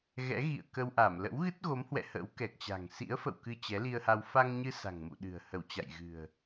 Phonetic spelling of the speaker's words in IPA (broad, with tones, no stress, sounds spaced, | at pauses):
ɣ ɛ̰˧˥ ɣ ḭ˧˨ ə̯ k ə˧ w ʔ a˧˩ m l ə̰˧˥ w ɣ ɨ˦˥ t̚ ɣ o˨˦ m h w ɛ̰˧˨ h ə̰˧˥ w k ɛ˨˩ k̚ t͡ɕ a̤˨˩ ŋ s ḭ˧˥ ə̯ f ə̰˧˨ w k ɨ˧ t͡ɕ ɛ˨˦ l i˧ ə̯ h a˧ w f a˧ ŋ ɲ ɨ˧ s a̤˨˩ ŋ m ṵ˧˨ ɗ ɨ̤˨˩ ə̯ h ə˧˩ w t͡ɕ a̰˧˨ j ɣ ɨ̤˨˩ ə̯